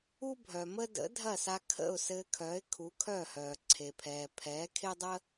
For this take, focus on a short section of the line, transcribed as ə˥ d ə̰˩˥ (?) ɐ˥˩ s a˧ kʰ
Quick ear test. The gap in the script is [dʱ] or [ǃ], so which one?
dʱ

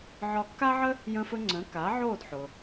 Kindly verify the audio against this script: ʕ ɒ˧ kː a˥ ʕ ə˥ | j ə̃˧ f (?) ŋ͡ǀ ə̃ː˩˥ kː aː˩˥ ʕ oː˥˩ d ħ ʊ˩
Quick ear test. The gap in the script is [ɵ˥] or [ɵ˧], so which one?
ɵ˧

